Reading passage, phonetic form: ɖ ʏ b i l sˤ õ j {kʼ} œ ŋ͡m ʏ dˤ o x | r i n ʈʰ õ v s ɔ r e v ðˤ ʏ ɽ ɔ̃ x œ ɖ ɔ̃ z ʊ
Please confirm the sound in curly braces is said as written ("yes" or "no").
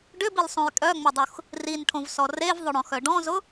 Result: yes